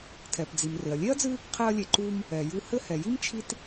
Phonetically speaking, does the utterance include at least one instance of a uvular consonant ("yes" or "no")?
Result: yes